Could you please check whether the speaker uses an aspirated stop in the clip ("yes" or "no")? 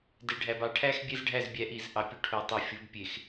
yes